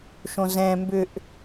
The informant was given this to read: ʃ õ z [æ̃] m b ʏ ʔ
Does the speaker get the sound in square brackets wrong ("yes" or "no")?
yes